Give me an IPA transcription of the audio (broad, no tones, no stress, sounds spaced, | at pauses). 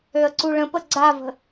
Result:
ø ə̯ ǀ u ɭ ə̃ p ə ɡ͡ǀ a v ə̤